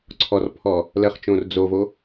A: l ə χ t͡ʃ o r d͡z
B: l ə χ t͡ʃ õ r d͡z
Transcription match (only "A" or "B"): B